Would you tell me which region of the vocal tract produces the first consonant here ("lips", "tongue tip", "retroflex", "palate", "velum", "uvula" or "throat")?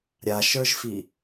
tongue tip